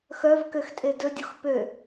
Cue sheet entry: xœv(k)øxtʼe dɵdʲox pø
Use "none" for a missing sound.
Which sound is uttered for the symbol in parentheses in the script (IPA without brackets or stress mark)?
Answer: k